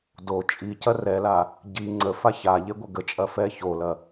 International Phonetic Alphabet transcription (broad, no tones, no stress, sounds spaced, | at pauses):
d o t͡ʃʼ i c ɐ r ɛ l a | ɟ i ŋ͡ǀ ə f a ç a ʎ e ɡʷ ɐ ɡ ə t͡ʃʼ ɐ f ɛ ç o l ɐ